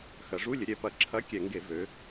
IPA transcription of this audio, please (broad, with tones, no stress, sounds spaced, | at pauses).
x ɐ˩˧ ʐ u˧˥˧ lʲ ə˩˧ ɾʲ ɛ˨˥ p ɐ˧˩˧ ǁʰ ɐ˧˥˧ kʲ ɛ˧˩˧ ŋ ɡ e˧˩˧ v ø˩˧